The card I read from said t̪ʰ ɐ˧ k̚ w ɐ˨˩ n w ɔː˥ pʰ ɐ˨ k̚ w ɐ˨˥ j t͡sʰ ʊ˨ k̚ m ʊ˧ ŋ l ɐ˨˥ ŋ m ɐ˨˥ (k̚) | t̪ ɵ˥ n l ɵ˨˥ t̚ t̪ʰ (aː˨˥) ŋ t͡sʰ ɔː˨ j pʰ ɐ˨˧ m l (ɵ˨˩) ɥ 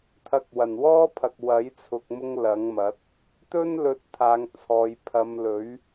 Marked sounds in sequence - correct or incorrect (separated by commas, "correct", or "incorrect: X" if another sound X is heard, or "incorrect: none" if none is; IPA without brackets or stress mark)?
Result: incorrect: t̚, incorrect: aː˨, incorrect: ɵ˨˥